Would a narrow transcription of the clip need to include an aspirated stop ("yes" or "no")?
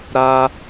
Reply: no